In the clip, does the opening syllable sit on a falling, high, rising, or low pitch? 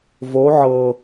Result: rising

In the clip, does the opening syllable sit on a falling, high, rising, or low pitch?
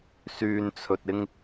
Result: low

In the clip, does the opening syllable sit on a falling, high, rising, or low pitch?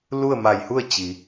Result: falling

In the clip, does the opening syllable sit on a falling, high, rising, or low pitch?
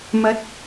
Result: rising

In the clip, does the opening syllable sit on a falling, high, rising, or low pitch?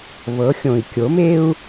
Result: rising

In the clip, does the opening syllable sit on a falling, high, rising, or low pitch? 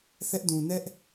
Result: high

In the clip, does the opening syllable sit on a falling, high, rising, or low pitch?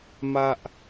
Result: high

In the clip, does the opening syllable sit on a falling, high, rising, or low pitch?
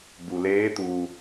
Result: low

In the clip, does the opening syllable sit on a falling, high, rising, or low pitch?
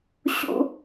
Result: high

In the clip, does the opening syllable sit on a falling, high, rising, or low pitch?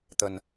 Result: low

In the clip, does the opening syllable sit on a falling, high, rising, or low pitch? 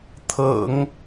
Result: low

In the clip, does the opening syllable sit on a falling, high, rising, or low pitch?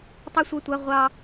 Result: high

